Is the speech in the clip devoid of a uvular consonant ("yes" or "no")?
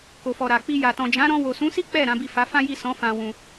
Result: yes